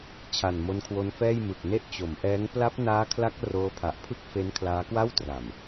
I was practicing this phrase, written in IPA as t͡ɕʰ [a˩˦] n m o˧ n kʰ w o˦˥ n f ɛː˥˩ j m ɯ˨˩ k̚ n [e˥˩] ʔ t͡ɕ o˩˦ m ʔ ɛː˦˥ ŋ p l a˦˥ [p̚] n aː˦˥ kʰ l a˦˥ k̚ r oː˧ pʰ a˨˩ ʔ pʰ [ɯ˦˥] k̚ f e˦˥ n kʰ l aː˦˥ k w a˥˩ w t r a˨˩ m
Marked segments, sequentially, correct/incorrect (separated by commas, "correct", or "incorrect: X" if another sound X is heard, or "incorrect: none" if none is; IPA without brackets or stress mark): incorrect: a˨˩, correct, correct, incorrect: ɯ˥˩